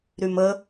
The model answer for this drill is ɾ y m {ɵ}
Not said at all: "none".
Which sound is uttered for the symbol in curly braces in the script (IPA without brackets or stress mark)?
ə